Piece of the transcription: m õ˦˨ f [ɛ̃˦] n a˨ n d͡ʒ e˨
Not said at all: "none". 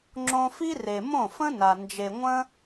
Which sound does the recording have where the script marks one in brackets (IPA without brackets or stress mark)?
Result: ə̃˦